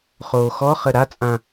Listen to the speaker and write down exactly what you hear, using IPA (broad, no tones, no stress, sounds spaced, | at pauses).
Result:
χ oː x ɔ χ ə ɾ a t͡sʼ ã